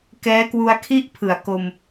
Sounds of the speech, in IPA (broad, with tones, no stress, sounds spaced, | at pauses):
k ɛː˦˥ k w u˧ a̯ kʰ i˥˩ ʔ pʰ ɯ˩˦ a̯ k o˧ m